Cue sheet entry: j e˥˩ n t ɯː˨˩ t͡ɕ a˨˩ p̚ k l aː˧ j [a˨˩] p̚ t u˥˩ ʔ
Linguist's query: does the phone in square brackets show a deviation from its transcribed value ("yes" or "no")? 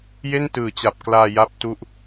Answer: yes